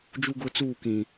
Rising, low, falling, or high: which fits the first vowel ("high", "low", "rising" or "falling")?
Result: high